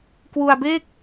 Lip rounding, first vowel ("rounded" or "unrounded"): rounded